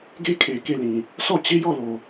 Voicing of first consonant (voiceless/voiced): voiced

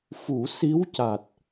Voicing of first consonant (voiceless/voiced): voiceless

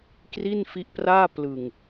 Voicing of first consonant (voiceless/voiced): voiceless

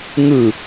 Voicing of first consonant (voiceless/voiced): voiced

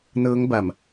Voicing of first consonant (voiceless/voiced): voiced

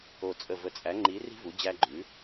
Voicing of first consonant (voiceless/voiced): voiceless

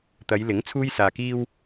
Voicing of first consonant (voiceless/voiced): voiceless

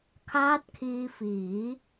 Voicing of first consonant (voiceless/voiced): voiceless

